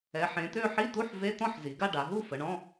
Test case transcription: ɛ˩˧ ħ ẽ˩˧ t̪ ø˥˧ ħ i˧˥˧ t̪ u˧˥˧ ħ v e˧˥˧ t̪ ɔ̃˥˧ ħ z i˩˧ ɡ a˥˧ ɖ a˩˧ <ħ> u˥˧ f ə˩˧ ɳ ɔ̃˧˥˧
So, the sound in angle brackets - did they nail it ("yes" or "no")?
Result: no